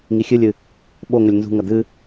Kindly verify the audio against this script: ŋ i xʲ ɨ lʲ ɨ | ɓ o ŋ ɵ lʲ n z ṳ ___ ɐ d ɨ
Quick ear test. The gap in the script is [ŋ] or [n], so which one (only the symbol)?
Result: ŋ